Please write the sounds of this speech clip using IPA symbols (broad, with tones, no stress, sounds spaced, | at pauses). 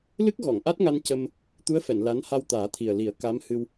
l ɨ˦˥ k̚ ɣ ɔ˨˩˨ ŋ ʔ a˦˥ t̚ ŋ a˧ n c ə˧ m | t̪ u˧˥ ə̯ f ɛ˨˩˨ n l a˧˥ n h a˧ w t̪ aː˨˩˦ t̪ʰ i˨˩ ə̯ l i˨˩˦ ə̯ k a˧˥ m h ɨ˧ w